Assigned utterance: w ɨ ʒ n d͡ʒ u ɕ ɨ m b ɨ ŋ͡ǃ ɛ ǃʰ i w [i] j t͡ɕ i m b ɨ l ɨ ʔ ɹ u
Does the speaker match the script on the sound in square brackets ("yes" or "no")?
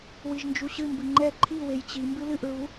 no